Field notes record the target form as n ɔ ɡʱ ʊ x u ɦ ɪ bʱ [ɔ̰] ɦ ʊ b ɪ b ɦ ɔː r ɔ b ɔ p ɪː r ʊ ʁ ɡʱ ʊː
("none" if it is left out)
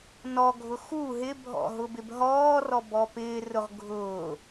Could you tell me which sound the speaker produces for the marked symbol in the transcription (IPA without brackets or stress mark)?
ɔ̰